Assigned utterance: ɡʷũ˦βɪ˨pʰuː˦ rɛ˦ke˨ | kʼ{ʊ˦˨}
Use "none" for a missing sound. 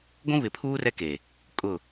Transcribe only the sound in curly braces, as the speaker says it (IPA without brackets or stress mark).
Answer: ʊ˦˨